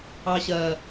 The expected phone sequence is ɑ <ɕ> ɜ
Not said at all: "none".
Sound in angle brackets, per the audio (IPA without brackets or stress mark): ɕ